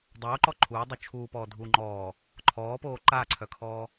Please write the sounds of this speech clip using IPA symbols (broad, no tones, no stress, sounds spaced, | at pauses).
dˤ oː ǃ ɔ ǃʰ uː dˤ u t͡ʃʰ uː p ɔː dʱ uː ŋ͡ǃ ɔː | ǃʰ ɔː p oː ǃ a ǀʰ œ kʰ ɔː